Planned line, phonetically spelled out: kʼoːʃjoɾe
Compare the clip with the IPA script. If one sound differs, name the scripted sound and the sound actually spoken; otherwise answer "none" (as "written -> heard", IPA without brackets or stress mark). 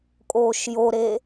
none